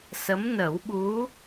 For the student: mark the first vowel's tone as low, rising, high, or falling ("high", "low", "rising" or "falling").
rising